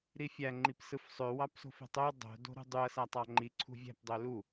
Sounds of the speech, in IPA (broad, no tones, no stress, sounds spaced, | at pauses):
ɾ i fʲ æ ŋ͡ǃ i p s ɯ f sˤ ø w ɑ p s o̤ f e̤ tˤ ø w dˤ o̤ d o̤ ɾ ṳ dˤ y ɐ̯ s æ tˤ ɑ ŋ͡ǃ i ǀʰ ṳ vʲ æ̤ p dˤ ø l u